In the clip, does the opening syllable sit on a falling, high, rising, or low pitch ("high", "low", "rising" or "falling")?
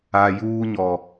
low